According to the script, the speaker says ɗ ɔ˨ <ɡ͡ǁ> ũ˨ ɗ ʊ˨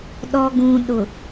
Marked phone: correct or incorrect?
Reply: incorrect